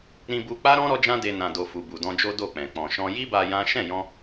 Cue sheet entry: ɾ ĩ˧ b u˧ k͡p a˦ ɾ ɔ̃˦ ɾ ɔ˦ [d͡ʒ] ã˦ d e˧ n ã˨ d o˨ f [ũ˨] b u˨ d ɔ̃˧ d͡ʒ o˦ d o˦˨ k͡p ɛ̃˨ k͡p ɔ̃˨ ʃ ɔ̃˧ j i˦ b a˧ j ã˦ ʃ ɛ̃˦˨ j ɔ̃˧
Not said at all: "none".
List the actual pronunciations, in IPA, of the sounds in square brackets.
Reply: d͡ʒ, u˨

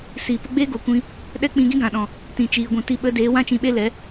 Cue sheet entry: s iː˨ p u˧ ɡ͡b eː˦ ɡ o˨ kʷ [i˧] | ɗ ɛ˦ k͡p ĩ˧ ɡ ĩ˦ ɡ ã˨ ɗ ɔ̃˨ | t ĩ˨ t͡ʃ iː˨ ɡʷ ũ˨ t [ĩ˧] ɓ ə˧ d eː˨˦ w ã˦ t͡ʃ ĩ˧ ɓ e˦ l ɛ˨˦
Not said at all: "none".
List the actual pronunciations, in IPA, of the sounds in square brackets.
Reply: ĩ˧, i˧

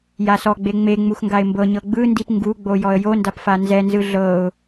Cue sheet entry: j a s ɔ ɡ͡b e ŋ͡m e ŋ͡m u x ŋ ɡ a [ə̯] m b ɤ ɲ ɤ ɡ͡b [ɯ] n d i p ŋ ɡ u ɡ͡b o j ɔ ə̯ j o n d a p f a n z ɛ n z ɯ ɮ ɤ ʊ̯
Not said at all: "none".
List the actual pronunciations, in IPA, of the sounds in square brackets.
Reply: ɪ̯, ɯ

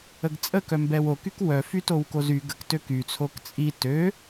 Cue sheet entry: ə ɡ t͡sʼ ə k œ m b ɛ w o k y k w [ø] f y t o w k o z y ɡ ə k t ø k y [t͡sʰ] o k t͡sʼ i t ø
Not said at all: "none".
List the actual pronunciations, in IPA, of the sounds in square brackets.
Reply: œ, t͡sʰ

